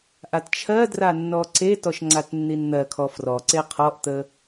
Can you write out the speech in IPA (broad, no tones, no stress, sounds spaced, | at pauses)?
ʔ a t t͡ʃʰ ɜ d r a nː ɔ ǀ e t ɔ ʃ ŋ͡ǀ a t nː i n n̪ ɜ kʰ ɔ f r ɔ ǀ e qʰ ɔ ʔ t̪ ə